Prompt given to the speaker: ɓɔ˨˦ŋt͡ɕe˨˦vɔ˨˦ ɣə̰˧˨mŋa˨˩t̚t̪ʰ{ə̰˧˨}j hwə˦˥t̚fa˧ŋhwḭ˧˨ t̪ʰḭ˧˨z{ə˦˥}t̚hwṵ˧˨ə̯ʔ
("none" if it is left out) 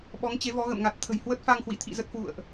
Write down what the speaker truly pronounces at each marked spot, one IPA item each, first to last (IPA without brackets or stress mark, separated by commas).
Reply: ə̤˨˩, ə˦˥